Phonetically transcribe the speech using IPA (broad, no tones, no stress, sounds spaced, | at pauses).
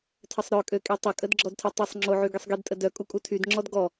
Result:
tʰ ə sˤ ɾ œ kʼ ø kʼ i tˤ ə kʼ ə d ɡ͡ǁ ɔ d tʰ ø tˤ i sˤ ŋ͡ǁ o ʕ y ɡ i sˤ ɡ i d tʼ ə d œ kʼ u kʼ u tʰ y d ŋ͡ǁ ɔ d ɡ ɔ